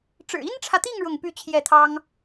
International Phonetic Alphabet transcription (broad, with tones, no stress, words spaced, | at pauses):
ʈ͡ʂɻ̩˨˩i˥nʈ͡ʂʰä˨t̪i˥˧ŋ ɻʊ˥˧ŋpy˥˧ t͡ɕʰjɛ˥˩t̪ʰɑ˥ŋ